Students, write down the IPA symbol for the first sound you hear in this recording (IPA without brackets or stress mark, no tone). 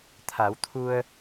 t̪ʰ